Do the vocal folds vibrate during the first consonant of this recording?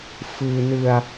no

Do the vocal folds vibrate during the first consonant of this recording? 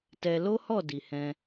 no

